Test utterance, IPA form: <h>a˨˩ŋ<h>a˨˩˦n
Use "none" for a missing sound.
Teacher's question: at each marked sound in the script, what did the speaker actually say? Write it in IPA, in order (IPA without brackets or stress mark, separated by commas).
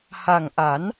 h, ʔ